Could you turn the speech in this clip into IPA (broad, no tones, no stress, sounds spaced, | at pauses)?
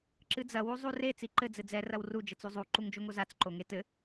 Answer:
ǁ ɨ d͡z ɐ w u zˤ u r e t͡s i ǃ ɘ d͡z ɘ d͡z ɛ r ɐ w r u d͡ʒ ɘ t͡s u zˤ u ǃ u ŋ d͡ʒ o ŋ o z a t͡s ǃ o ŋ e t ɘ